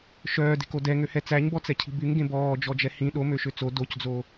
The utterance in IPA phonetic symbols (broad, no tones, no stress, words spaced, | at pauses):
ʃœːde̤ko dɛŋøhɛ t͡sæɲbɔt͡sɛcʰi̤ byŋɡẽ bɔːd͡ʒɔd͡ʒɛ hĩ ɗomøʃø t͡so docd͡zo